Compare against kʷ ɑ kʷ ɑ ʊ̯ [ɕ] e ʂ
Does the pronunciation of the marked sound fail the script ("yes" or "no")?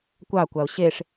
no